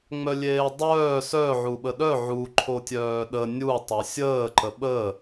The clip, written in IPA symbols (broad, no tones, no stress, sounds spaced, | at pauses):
ŋ͡m œ lʲ eː dˤ œː s œ ʕ u ɓ ə ɗ œ ʕ u ǃʰ o tʲ œː ɗ ə nʲ u tˤ œ sʲ əː ǃ ə ɓ ə